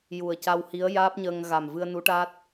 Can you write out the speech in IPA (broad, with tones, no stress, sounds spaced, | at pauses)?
j u˨˩ ə̯ c a˧ w h i˧˥ ə̯ j aː˦˥ p̚ ɲ əː˧ ŋ ɣ a˨˩ m v ɨ˧ ə̯ n u˧˥ ʈ a˦˥ t̚